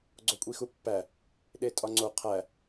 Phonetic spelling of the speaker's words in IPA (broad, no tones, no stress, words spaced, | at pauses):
ɡ͡ǀokʷʼixupːæ | ɗetʼɒŋ͡ǀo qʰæ